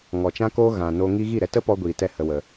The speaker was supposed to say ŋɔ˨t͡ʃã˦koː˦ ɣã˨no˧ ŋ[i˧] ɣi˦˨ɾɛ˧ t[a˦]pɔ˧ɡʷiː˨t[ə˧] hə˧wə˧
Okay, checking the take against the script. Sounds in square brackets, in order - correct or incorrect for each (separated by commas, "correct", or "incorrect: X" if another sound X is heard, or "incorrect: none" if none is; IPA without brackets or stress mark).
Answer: correct, incorrect: ə˦, incorrect: ɛ˧